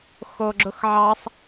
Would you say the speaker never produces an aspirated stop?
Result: yes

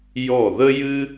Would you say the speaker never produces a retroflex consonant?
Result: yes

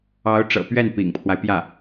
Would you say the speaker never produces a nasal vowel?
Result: yes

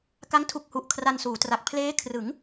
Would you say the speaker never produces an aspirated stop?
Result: no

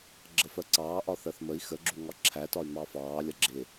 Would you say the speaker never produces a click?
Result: no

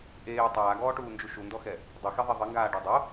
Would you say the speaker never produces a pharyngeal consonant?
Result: yes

